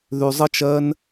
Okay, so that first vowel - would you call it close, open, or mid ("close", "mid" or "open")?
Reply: close